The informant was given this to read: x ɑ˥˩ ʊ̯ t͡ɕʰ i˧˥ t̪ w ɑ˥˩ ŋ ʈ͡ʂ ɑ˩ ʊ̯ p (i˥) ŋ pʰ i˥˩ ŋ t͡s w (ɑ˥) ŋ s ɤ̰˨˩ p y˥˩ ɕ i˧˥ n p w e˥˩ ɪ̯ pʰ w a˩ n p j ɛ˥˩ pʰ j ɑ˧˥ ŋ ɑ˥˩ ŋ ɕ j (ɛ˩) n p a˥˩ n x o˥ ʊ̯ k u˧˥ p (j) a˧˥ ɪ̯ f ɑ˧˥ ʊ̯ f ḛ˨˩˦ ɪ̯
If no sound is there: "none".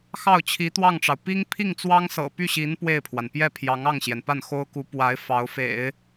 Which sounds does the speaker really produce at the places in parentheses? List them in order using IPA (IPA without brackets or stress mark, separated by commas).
i˥, ɑ˥, ɛ˩, w